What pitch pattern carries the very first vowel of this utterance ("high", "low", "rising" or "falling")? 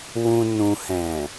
low